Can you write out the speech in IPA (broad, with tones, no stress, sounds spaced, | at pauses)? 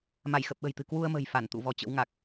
m a˧˩ j x ə˨˩ p̚ ɓ ə̤˨˩ j t̪ ɨ̤˨˩ k w u˧ ə̯ m ə̤˨˩ j f a˧˩ n t̪ ṵ˧˨ v ɔ˧ t͡ɕ ə̰˧˥ w ŋ a˨˩ k̚